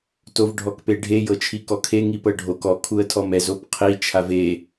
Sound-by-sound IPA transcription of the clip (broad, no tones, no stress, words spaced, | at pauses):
tovɖʱɔkpeɖʱe jɤt͡ʃʰikɔkʰe ŋipɤɖʱok ɔ kʰuə̯tʰɔmɛz opqʰi t͡ʃʰave